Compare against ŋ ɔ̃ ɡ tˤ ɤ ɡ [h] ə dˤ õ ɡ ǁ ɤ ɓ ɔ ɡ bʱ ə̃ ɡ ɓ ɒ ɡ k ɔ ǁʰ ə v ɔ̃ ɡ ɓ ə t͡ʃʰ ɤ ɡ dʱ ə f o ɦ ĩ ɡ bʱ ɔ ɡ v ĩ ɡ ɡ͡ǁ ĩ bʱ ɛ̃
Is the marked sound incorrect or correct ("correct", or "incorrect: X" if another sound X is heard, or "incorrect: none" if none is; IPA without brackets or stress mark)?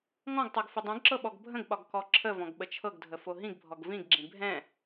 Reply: incorrect: f